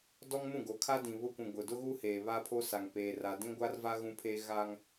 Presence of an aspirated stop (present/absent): present